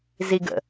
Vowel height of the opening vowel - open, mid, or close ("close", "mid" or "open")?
close